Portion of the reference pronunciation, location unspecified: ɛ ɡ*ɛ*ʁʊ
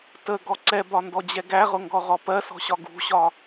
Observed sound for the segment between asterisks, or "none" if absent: æ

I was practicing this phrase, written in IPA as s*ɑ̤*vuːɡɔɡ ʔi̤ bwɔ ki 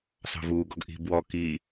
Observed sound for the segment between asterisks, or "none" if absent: ɑ̤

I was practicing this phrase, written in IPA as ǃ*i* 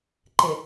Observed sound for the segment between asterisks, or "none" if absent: ɪ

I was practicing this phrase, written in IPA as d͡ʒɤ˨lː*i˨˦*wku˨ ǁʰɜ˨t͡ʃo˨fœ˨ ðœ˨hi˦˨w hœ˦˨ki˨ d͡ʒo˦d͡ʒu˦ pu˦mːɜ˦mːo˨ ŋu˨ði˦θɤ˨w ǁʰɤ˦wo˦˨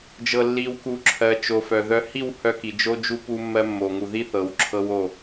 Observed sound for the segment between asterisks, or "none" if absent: i˨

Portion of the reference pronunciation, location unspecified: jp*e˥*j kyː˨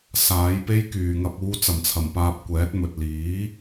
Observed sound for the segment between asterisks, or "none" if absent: e˥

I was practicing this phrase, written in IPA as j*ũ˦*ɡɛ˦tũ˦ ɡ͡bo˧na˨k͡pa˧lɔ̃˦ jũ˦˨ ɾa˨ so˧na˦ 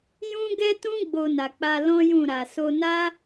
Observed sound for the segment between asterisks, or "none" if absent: ũ˦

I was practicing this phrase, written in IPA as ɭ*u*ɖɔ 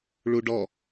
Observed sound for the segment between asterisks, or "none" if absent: u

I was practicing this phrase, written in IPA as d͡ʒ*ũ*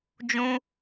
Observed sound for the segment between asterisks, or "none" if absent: ũ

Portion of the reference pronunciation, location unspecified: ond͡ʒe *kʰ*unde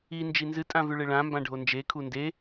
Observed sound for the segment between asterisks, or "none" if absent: kʰ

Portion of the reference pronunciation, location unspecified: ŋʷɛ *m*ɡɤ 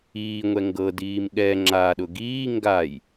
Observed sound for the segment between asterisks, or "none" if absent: ŋ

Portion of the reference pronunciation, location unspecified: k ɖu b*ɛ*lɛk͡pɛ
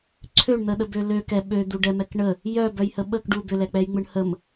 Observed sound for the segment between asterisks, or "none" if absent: ʏ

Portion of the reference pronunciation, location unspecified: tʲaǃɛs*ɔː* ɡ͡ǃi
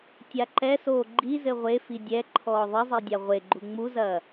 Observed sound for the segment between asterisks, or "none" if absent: oː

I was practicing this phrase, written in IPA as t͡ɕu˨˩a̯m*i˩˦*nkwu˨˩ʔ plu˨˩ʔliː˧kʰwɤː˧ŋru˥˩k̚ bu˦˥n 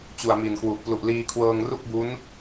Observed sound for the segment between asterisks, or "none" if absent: i˨˩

